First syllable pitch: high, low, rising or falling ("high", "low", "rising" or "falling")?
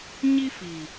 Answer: high